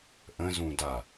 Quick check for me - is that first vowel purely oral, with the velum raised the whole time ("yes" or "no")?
no